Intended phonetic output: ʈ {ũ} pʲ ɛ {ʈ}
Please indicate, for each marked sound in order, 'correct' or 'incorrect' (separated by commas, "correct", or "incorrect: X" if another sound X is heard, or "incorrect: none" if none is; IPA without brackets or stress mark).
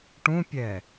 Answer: correct, incorrect: none